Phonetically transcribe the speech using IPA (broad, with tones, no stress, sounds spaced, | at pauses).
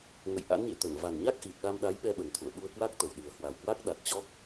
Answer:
ŋ ə̰˧˨ j ʔ a̰˧˥ n ɲ ḛ˧˨ t̪ ə˧˩ n v a˨˩ n ɲ a˦˥ k̚ ʔ i˨˩ t̚ ɗ a˧ m ɗ a˨˦ j ɓ ɛ˧ ɓ ə˨˩ n t̪ʰ ṵ˧˨ ə̯ ɓ u˧ ə̯ k w a˦˥ k̚ t̪ ə˨˩ w ɗ ɨ˨˩ ə̯ h w a˨˩ w k w a˦˥ k̚ ɗ a˨˩ t̚ t͡ɕ ɔ˦˥ k̚